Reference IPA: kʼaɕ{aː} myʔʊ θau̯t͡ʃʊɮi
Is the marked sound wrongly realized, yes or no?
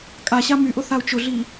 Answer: yes